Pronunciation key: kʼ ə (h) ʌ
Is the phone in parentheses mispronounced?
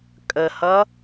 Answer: no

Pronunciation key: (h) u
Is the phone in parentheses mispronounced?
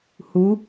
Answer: no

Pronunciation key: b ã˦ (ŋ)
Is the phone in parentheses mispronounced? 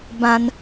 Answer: yes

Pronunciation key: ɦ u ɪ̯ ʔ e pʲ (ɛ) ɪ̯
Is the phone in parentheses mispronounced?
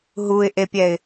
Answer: no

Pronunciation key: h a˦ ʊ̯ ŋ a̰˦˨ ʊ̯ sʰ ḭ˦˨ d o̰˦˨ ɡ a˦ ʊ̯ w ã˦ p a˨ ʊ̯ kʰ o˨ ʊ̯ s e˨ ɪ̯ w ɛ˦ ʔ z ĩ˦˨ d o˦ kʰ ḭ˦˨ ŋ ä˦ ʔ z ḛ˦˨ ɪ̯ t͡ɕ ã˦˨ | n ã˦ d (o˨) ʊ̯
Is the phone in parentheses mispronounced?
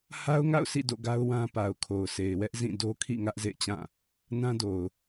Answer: no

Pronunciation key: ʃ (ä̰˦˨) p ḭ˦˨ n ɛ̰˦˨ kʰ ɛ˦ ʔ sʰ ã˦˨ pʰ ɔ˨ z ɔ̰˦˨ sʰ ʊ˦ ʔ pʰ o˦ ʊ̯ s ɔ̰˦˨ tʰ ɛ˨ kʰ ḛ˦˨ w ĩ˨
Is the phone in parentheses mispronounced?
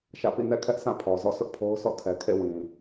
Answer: no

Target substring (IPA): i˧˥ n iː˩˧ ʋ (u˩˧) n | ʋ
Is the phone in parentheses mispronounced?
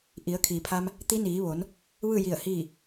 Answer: yes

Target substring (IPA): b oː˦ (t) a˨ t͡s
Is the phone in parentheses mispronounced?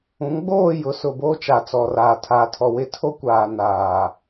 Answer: yes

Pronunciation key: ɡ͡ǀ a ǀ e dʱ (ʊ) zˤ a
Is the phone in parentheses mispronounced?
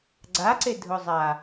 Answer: no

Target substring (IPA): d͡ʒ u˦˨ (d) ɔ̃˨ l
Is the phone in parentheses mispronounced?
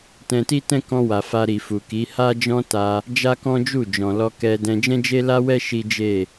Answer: yes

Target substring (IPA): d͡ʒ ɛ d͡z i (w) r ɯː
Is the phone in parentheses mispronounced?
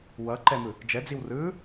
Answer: no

